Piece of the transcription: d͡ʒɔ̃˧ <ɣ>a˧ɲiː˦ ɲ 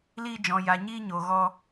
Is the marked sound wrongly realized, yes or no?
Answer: yes